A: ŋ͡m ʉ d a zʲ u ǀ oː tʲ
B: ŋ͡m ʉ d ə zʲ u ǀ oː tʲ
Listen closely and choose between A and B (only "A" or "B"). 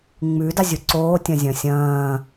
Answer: A